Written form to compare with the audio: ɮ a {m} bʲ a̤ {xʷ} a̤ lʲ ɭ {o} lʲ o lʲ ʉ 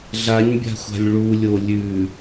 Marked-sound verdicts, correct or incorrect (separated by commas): incorrect, correct, incorrect